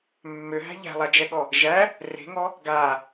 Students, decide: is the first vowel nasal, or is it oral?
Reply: oral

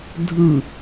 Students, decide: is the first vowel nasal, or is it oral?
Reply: oral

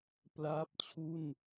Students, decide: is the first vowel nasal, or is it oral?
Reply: oral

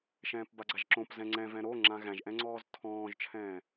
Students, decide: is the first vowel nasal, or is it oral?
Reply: nasal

